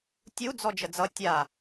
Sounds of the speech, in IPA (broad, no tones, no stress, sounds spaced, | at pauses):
tʲ u d͡z ɔ d͡ʒ ə d͡z ʌ tʲ a